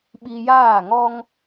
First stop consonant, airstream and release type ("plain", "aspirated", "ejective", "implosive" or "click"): implosive